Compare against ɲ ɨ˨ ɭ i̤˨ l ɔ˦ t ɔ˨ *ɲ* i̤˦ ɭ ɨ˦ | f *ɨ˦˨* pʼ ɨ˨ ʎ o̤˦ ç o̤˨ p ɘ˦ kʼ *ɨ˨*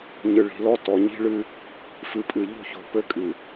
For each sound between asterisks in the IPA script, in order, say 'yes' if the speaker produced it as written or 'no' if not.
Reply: yes, no, yes

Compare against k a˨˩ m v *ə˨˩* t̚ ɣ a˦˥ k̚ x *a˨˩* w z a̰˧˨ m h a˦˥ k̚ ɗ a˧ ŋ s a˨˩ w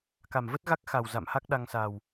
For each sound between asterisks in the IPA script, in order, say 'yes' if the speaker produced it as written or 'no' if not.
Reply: no, yes

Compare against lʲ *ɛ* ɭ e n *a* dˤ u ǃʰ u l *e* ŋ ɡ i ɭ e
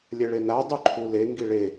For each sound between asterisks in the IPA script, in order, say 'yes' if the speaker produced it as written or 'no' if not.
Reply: yes, yes, yes

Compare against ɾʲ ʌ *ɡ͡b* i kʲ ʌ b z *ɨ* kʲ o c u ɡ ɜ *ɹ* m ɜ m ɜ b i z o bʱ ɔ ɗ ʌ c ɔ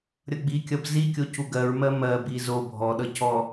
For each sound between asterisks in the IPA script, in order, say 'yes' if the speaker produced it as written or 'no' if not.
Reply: yes, no, yes

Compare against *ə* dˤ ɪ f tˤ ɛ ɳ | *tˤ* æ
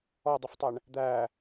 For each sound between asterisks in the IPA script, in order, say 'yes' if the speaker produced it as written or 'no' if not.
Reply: no, no

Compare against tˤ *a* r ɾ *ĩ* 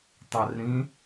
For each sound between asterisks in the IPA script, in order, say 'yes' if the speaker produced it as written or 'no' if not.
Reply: yes, yes

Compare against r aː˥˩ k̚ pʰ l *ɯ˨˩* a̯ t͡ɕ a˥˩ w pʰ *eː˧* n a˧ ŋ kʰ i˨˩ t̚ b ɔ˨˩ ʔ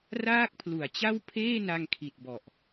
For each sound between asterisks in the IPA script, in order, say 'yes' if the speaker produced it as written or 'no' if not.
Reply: no, no

